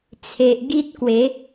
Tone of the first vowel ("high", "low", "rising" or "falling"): low